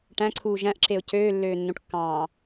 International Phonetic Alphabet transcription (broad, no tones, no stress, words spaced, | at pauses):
ʈæ̃ǀʰuː ʒæ̃ʔǁeʊ̯ cøːlːøːnːõʈkːɑ̃ː